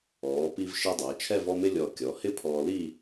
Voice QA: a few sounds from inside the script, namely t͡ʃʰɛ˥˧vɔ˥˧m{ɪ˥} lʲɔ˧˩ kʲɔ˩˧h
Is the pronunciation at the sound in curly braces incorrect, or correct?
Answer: correct